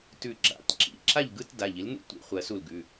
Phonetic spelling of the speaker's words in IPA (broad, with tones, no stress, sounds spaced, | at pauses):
t ʉ˧˩ ɡ͡ǁ a̰˩˧˩ t ǁ ḭ˩˧˩ ǁ a˥˩ ʎ ɡ ɯ˥˧ t d a˩˧˩ ʎ i˩˥ l n ṵ˥˧ tʷ ḭ˩˧˩ χʷ ɜ˨˩˦ s u˧˩ l ɡ ʉ˩˧˩